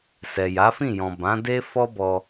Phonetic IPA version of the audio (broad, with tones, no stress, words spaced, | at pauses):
sɛ˨ja˨˦fĩ˦˨jɔ̃˨ bã˨˦de˦ fɔ˦bɔ˧